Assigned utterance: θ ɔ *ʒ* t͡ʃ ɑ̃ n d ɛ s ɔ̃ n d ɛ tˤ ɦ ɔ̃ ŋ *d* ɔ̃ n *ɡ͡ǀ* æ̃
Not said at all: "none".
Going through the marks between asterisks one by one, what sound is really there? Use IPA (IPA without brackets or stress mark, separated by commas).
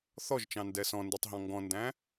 ʒ, ɡ, d